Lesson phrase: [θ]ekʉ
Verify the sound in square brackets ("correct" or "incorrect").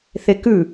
correct